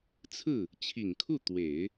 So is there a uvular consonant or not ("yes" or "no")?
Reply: no